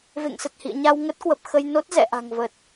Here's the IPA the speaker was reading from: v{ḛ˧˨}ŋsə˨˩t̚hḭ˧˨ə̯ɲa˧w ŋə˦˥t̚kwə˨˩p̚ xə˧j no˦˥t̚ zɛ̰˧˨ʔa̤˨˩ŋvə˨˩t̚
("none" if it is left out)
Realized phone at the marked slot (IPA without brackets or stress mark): ḛ˧˨